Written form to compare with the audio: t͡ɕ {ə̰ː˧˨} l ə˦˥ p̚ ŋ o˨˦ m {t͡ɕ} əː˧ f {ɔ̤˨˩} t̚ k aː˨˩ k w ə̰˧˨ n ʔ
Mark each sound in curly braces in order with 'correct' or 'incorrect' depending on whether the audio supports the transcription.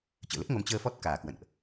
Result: correct, correct, incorrect

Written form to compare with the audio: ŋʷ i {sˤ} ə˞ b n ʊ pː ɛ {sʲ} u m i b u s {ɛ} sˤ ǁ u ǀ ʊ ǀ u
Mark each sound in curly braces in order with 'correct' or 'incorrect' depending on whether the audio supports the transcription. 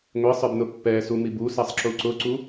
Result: correct, incorrect, correct

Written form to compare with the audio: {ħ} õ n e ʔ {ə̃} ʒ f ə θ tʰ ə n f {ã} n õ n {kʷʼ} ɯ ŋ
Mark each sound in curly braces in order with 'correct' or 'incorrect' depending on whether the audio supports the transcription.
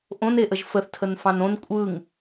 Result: incorrect, incorrect, incorrect, correct

